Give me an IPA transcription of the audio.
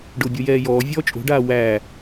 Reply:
ɖ ʊː bʲ o j ɛː j ɔː vʲ ɔː t͡ʃʼ o̤ ɖ aː w æ

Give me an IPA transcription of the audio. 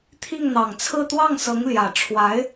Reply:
t̪ʰ i˥˩ ŋ n̪ ɑ˨˩ ŋ t͡sʰ ɹ̩˥˧ t̪ w ɑ˥˩ ŋ s ɤ˧˥ ŋ l j ä˨˩ ʈ͡ʂʰ w a˧˥ ɪ̯

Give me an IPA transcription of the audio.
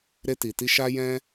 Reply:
ɾ e˧ t i˨ t i˧ ʃ a˦ j ɛ̃˦

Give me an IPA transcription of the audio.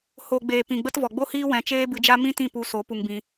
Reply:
h o˨ ɡ͡b eː˨ p ĩ˨ ɡ͡b ə˦ t v ɔ˨ ɡ͡b o˦ h iː˦ w ɛ̃˧ t͡ʃ eː˦ b ɨ˧ d͡ʒ a˦ m ĩ˦ t ĩ˦˨ p u˧ s o˨˦ p u˧ ŋ b ĩ˧

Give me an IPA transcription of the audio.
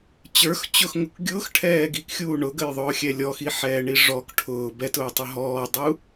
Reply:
t͡ɕ ə˞ x t͡ɕ ʊ x ŋ ʊ k ɡʲ ʊː x ʈʰ ɛː ɡ i k xʲ uː ɳ ʊ ɡ ə j ðˤ ʊː xʲ ɛ lʲ ɔ x i ħ ɛː ɳ i ʐ ɔ k ʈʰ ʊː b ɛ t ʊː tˤ ʊ ɦ ɔː dˤ u

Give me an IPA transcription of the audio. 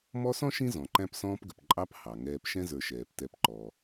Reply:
m ɔ˦ s ɔ̃˥ ʃ ĩ˥ z ɔ̃˩ ǃ æ̃˦ p s ɔ̃ː˦ p ɡ ə˩ p ǃʼ ɑ˦ p h ɑ˩ ŋ ɛː˨ p ʃ ɛ̃˥ z ə˞˨ ʃ ɛː˩ p t ɛ˨ p ǃ ɔ˩

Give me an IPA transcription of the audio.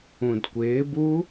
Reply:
ũ d kʷ ɪː b u

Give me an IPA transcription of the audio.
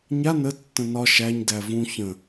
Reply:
ɲ a n ə tː ə̃ n ɒ ʃ æ ɲ d æ v ũ ç ə̃

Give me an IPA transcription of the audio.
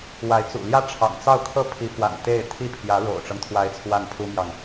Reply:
w a˧˥ ɪ̯ t͡s ṵ˨˩ l j ä˥ ʈ͡ʂʰ ɑ̰˨˩ ŋ t͡s ɑ˥˩ ʊ̯ kʰ ɤ˥ pʰ i˧˥ p w a̰˨˩ n t̪ e˥˩ ɪ̯ t̪ʰ i˥ pʰ j ä˧˥ ɻ o̰˨˩ ʊ̯ ʈ͡ʂ ɤ˦ ŋ t̪ʰ w a˧˥ ɪ̯ t͡sʰ w a˥˩ n pʰ u˥ m j ɑ˨ ŋ

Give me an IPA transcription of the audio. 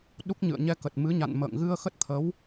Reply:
ɗ u˦˥ k̚ ɲ ɨ̰˧˨ ə̯ ɲ ɛ˧ k ə˨˩ t̚ m ɨ˨˦ ɲ a̰˧˨ n m ə̰ː˧˨ ŋ ɣ ɨ˧ ə̯ x ə˦˥ t̚ t̪ʰ ə˨˦ w

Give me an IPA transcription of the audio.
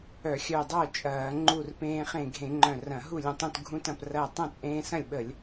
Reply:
œ˧˩˧ xʲ œ˧˩ dˤ œː˥˩ t͡ʃʼ ɐː˧˩˧ ŋ͡ǃ u˧˩ r p ẽː˧ χ ẽ˧˩ ɡʱ ẽ˧˩˧ ŋ͡ǃ œ̃˧˩ r ɐ̃˧˩˧ ɦ u˥˩ lʲ ə̃˧˩ tˤ ũ˧˩ t ɡʱ ũ˧ t ɐ̃˧˩ p r ɐː˧˩ tˤ ɐ̃˥˩ t͡sʼ ẽː˧ s ɐ̃˥˩ lʲ ɓ ə˧˩˧ lʲ

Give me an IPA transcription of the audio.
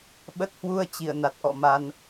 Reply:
ɓ ə˦˥ t̚ h w u˧ ə̯ t͡ɕ i˧˩ ə̯ n a˨˩ t̚ ʔ ɔ̰˧˨ m a˧ n

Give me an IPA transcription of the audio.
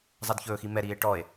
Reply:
zˤ ɛ d ç ɵː x i m ɛ ɾ iː e̯ ʈ ɔ e̯

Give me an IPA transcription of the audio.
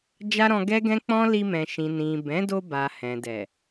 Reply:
d͡ʒ a˦ ɾ ɔ̃˧ ɡ ɛ˦ ɡ ɛ̃˦ k͡p ɔ̃˦ l i˧ m ɛ̃˨ ʃ ĩ˨ n ĩ˨ b ɛ̃˨˦ d o˧ b a˨ h ɛ̃˨ d ɛ˨

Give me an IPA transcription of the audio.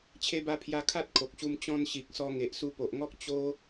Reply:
t͡ɕʰ e˧ b a˧ pʰ j a˧ kʰ a˦ t̚ kʰ o˨ k̚ ɕ u˧ m t͡ɕ ɔ̃˧ n ɕ i˨ k̚ s ɔ˧ ŋ e˨ ʔ s u˧ p o˨ ʔ ŋ ɔ˦ k̚ t͡ɕ o˦

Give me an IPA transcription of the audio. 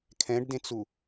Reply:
kʰ ɛ̃ ɖ d ẽ t͡s u

